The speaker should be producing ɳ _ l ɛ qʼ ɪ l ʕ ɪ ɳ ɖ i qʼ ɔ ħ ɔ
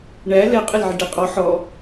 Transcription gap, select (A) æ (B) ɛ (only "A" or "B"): A